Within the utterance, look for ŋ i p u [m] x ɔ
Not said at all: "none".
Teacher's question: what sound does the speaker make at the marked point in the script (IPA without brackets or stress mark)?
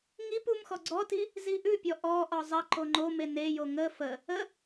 m